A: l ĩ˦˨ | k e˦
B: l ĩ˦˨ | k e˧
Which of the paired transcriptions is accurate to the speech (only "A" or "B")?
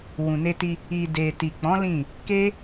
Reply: A